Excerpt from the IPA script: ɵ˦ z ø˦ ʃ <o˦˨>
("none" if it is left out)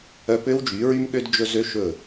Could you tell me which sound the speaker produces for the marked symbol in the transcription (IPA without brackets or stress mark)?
ɵ˦˨